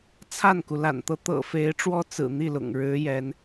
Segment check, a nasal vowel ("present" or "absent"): absent